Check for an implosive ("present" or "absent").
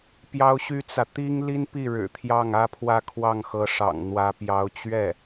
absent